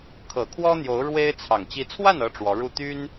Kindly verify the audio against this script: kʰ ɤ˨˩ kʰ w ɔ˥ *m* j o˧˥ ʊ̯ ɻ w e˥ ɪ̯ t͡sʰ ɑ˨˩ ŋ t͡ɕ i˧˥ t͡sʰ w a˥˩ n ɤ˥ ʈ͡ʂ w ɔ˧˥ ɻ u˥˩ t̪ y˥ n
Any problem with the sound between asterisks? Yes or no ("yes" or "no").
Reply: yes